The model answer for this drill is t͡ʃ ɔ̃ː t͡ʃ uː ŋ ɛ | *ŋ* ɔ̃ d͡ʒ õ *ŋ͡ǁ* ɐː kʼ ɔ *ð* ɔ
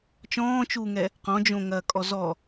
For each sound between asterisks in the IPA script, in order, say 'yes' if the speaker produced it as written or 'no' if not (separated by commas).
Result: no, no, no